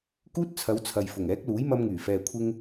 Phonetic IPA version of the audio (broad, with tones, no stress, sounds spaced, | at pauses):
k uː˥ t̚ t͡sʰ ɐ˨˧ w t͡sʰ ɐ˨ j f ʊ˨˩ ŋ ɛː˨˥ k̚ l uː˨˥ j m ɐ˧ m ŋ yː˨˩ f ɛː˨ kʷʰ ɪ˧ ŋ